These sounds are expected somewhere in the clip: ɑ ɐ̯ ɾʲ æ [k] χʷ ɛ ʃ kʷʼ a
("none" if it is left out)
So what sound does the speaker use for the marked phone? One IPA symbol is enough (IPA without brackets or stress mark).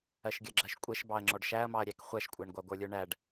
k